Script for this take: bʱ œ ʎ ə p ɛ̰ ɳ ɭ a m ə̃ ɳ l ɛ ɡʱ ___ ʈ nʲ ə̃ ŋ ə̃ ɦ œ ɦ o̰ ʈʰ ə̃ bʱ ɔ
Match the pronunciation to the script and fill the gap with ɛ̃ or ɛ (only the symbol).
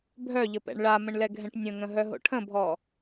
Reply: ɛ̃